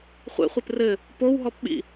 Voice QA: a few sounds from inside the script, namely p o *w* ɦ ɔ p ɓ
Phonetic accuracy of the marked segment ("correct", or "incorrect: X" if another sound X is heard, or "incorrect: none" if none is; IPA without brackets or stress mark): correct